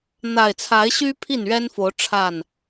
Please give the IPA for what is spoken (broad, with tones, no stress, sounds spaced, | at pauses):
n̪ a˨˩ ɪ̯ t͡sʰ a˨˦ ɪ̯ ɕ y˦ pʰ i˥˨ n ɥ ɛ˦ n f o˨˦ ʊ̯ ʈ͡ʂʰ a˥˨ n